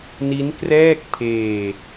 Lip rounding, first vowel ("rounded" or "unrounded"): unrounded